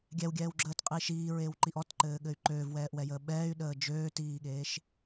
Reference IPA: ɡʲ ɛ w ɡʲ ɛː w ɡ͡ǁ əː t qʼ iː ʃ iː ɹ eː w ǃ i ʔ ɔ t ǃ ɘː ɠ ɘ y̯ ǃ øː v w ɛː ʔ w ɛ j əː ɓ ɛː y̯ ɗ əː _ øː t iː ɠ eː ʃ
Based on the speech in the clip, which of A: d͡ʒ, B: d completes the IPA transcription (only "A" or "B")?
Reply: A